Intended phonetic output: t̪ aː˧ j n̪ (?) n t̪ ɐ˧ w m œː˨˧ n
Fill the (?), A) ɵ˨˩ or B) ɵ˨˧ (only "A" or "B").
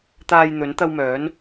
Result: B